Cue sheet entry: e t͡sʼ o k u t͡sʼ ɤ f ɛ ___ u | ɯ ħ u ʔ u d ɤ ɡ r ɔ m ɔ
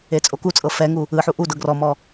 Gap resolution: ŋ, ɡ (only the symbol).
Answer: ŋ